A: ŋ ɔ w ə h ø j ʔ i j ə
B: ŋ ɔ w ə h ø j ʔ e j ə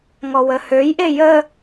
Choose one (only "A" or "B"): B